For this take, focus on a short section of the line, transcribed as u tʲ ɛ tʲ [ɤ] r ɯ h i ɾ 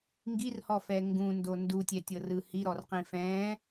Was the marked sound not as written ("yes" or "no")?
no